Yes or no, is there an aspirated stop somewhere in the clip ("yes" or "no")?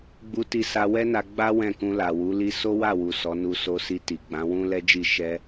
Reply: no